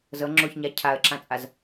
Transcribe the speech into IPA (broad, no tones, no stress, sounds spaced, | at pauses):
z ɤ ŋ͡ǁ o ç ɲ a cʰ a ə̯ ǁ ã t͡sʼ a z